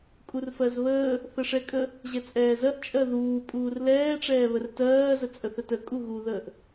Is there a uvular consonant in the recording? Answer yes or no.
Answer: no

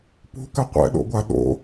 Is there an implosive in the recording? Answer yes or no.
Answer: yes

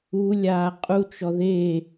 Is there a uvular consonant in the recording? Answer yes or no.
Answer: yes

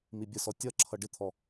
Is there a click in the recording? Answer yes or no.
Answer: yes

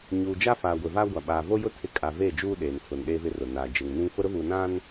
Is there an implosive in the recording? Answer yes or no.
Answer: yes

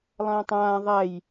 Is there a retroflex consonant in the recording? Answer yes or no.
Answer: no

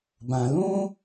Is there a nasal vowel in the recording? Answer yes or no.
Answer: yes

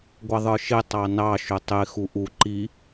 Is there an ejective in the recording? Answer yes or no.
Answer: no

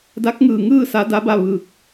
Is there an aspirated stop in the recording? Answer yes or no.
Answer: no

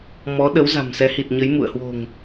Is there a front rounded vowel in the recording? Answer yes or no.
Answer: no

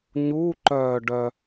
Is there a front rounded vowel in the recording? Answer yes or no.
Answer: yes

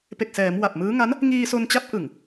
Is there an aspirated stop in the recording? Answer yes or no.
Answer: no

